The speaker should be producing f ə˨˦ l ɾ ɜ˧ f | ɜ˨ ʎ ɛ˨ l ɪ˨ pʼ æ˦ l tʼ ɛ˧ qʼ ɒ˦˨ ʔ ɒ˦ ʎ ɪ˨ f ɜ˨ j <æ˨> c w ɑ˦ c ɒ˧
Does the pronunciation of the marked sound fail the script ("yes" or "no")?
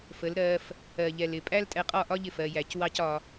no